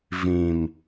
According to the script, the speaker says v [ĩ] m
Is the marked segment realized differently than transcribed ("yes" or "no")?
no